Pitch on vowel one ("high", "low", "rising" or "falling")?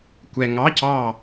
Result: low